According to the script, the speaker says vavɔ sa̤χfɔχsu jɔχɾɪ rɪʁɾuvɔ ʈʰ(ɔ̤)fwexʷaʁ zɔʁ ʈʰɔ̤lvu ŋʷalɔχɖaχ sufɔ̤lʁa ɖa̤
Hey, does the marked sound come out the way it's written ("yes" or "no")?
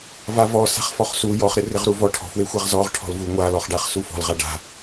yes